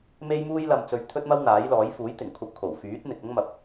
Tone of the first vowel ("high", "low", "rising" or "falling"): high